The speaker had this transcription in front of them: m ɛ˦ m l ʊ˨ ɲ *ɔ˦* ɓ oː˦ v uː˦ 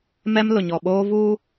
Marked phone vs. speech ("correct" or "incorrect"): incorrect